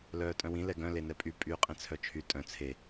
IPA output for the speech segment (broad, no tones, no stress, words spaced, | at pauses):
lœːtʼœ̃wĩ lɛɡœ̃ lenɛpʼy pʼyːqʼẽt͡sʰœt͡ʃʰy tʼœ̃ t͡sʰe